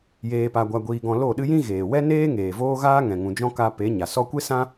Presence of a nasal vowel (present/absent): present